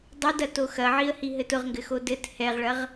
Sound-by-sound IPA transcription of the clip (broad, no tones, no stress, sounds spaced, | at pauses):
dˤ ʊ d ɐ t o x ɐ ʕ i ə̯ h i ɦ ɘ t ʊ ʁ ŋ ɡ ɘ x o d ɘ t h ɛ ʁ ɭ ɐ ʁ